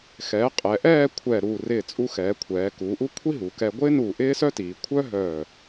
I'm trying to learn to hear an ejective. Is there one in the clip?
yes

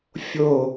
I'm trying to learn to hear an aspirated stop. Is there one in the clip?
no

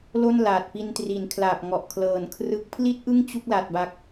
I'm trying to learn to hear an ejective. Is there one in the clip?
no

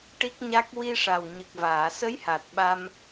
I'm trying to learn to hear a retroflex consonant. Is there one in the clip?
yes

